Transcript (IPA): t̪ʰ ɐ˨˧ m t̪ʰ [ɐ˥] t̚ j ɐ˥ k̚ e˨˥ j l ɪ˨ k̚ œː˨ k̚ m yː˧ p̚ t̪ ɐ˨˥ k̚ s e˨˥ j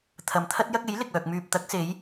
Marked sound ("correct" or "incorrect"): correct